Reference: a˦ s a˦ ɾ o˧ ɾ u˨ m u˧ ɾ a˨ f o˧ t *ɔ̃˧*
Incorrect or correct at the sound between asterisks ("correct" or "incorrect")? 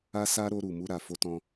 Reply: correct